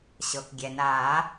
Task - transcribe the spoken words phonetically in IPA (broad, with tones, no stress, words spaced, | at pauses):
ɕɤ˩k ɡʲɛ˩naː˨˩˦